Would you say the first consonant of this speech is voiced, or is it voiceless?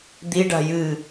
voiced